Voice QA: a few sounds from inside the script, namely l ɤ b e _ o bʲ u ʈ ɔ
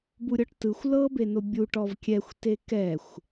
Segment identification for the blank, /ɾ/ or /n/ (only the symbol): n